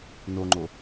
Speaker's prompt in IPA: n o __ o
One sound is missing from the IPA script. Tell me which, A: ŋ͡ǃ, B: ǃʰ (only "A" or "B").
A